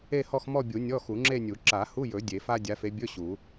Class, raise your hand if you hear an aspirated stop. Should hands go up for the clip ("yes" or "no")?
no